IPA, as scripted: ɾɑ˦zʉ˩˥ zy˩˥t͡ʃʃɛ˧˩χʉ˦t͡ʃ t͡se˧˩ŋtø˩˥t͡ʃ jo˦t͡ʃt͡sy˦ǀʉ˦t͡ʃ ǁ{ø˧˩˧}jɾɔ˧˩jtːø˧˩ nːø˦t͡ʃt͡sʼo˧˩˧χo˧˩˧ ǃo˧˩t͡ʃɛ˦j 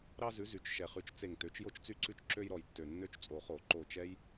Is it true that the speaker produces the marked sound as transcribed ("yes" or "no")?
no